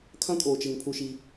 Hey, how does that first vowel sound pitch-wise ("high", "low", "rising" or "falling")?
high